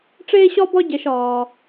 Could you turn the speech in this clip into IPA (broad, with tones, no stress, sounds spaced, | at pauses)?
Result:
ʈ͡ʂ eː˦ ɕ ɒ˦ b ɒ˦ ɟ ɛ˧ ʃ ɒː˧